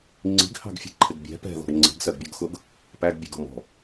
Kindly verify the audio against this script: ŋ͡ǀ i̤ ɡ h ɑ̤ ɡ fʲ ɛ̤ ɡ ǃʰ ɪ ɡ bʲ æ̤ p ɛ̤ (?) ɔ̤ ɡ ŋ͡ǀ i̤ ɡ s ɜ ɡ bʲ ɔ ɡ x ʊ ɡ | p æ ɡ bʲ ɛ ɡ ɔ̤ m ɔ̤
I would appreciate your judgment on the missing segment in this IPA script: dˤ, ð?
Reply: ð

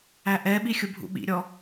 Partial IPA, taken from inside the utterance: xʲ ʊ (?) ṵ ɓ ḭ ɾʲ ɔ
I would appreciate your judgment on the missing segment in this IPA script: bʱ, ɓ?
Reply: bʱ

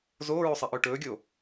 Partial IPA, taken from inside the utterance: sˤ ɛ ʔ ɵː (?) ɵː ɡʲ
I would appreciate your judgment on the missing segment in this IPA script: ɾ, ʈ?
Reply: ʈ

